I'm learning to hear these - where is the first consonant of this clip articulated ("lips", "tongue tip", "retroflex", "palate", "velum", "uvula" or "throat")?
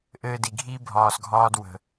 throat